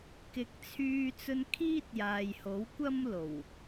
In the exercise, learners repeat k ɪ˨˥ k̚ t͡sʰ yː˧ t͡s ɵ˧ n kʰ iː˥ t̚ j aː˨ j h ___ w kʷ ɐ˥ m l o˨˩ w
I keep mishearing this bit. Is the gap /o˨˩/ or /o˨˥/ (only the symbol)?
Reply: o˨˥